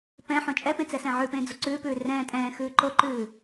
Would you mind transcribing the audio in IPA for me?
p ɛ̃ ħ õ t͡ʃʼ ɛ p ẽ t͡s ɛ s ɛ̃ ʕ ʉ p ẽː d͡z o ǀ ʉː p ʉː r ɛ̃ː tʼ ɛ̃ː x ʉː ǃ o ǃ ʉː

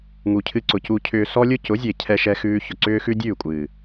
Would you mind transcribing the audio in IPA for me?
ŋ u˨ cʰ ɨ˧ ǀ ʊ˨ c u˨ cʰ ʏː˨ s ɔ˧ lʲ ʊ˧ c ʊ˨˦ zʲ e˨ cʰ ɛ˧ ʃ ɛ˧ x ʉː˧ ç ʊ˨ ǀ ʏː˦ x ʉ˦ dʲ ʉː˦˨ kʷʼ ɨː˨

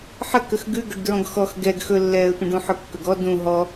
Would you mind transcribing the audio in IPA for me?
ħ ə k ə x ɡ ʉ ɡ ɵ ɖ d ɹ ɔ̃ ɡ x ɔ x ɡ ɛ ɡ x ɵ lː ɛː ə̯ tʷ ə̃ ɖ ũ ħ ɵ kː ɵ ɡ ɔ d ũ ɦ ɔ

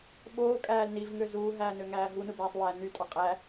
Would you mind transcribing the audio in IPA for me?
ɓ oː kʼ æː l n i v ŋ ø z uː ɦ æː n ø ŋ æː ɦ u n ɯ b æː sˤ w æː n y tʼ ɑ qʼ æ

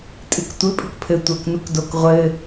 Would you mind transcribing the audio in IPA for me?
tʼ ɨ k tʷ ɘ pʼ ɨ k pʰ ɘ tʷ ɐː k n u k d o k ʁʷ ɘ

